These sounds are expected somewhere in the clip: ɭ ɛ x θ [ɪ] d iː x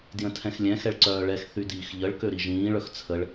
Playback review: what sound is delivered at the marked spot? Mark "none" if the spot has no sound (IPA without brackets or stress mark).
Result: y